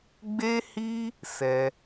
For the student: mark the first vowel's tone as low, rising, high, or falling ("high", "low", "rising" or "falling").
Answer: high